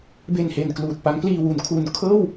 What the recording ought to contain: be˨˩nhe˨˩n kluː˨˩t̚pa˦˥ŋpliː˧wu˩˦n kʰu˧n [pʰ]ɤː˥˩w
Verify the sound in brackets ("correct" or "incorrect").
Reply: incorrect